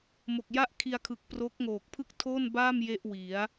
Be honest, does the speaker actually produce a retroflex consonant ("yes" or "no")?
no